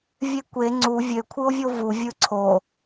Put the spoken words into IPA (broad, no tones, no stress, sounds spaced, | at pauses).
vʲ e kʷ e ŋ͡ǀ u vʲ ø kʷʰ ɯ o̯ vʲ o v u vʲ ɯ ǀʰ o